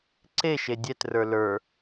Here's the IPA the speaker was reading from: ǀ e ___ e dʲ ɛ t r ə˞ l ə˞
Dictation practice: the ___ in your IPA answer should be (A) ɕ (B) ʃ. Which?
B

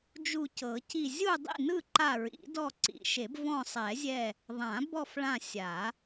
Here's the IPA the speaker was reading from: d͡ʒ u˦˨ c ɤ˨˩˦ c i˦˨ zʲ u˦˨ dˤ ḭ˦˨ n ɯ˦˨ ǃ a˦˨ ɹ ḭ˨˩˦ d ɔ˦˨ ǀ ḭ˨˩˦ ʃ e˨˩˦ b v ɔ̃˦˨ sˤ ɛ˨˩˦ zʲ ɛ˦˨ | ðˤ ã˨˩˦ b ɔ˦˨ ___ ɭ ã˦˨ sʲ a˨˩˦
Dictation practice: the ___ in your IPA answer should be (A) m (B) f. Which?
B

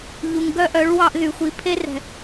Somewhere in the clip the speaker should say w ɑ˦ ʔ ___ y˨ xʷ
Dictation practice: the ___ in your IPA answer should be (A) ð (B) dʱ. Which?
A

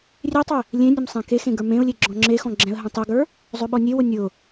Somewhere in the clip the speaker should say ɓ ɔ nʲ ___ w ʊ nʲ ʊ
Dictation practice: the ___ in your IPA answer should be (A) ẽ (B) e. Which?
B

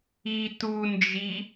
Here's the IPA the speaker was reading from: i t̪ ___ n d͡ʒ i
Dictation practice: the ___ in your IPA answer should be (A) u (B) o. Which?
A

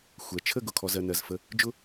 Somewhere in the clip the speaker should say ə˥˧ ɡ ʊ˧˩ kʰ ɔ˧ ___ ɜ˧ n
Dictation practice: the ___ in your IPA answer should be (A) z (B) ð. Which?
A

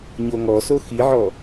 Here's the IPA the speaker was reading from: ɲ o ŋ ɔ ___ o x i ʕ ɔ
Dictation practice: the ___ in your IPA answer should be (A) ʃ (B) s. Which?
B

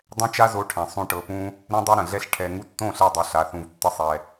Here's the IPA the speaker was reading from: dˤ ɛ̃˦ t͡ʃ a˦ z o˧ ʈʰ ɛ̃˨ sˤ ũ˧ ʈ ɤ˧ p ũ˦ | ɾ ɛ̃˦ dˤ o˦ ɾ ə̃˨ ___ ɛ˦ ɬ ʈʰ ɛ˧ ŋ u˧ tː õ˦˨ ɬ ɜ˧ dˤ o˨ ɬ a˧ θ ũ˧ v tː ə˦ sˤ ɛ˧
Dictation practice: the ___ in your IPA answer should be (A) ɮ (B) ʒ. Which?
A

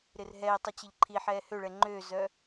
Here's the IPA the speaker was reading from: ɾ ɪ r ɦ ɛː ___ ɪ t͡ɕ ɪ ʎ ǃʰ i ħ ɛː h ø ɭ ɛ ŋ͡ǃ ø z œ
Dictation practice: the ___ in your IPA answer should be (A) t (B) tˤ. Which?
B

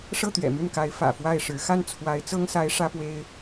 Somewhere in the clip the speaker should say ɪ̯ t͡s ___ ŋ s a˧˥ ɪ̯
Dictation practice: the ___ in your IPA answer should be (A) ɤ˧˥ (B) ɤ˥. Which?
B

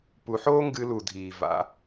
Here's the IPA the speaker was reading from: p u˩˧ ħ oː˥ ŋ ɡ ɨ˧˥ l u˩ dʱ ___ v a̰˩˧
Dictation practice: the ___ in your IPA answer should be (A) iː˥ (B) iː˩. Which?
B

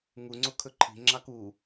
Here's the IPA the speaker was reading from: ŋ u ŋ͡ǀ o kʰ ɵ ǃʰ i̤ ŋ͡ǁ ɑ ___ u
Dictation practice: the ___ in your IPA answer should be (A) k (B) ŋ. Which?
A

